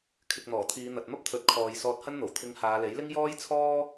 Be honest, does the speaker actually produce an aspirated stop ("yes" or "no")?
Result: yes